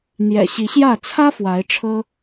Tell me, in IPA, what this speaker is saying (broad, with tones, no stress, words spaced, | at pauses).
n̪jɛ̰˨˩ɕi˨˦ɕjä˥˨ t͡sʰä˦ fwa˨˦ɪ̯ʈ͡ʂʰɤ˦